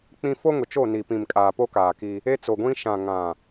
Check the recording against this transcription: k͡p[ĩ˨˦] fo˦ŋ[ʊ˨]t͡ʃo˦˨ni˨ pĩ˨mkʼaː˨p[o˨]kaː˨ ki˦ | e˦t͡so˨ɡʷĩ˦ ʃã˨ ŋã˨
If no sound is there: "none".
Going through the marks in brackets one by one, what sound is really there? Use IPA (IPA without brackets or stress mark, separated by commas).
ĩ˦, ʊ˨, o˦